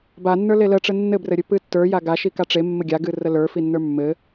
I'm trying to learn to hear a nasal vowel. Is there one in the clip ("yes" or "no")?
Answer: no